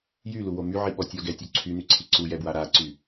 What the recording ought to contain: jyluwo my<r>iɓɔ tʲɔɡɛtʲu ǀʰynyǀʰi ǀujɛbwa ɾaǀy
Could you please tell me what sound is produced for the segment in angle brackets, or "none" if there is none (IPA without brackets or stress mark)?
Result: ʕ